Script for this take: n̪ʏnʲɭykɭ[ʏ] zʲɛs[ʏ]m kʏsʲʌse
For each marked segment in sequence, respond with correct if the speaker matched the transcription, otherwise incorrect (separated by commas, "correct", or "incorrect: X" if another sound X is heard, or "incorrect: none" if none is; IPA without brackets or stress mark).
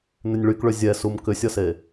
correct, incorrect: u